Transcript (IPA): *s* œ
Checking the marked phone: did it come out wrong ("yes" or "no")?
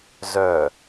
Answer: yes